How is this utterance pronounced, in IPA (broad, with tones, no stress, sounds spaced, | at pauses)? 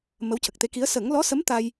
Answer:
m ə˧˥ w c ə˨˩ k̚ t̪ e˧˥ k i˧˥ ə̯ s ə˨˩˦ ŋ l ɔ˧˥ s ə˧˥ m t̪ a˧ j